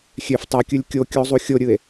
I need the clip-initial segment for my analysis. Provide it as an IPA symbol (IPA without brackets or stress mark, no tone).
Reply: xʲ